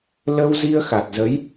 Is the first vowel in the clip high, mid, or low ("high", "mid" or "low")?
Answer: mid